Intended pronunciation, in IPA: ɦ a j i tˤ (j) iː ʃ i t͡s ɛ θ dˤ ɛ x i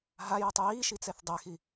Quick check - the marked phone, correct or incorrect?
correct